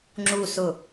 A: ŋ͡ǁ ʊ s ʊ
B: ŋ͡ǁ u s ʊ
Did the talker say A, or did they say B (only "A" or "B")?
B